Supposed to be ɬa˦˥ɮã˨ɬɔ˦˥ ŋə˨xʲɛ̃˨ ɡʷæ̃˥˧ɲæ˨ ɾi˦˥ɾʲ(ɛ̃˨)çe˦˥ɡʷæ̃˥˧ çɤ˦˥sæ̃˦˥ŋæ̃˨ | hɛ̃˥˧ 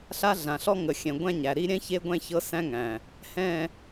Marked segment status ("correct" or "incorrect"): incorrect